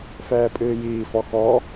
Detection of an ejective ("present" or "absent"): present